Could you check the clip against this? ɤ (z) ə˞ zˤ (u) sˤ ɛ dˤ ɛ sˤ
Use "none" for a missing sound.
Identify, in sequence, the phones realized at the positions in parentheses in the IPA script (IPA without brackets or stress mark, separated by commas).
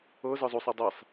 z, u